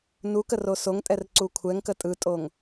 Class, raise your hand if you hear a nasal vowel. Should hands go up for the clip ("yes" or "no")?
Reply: no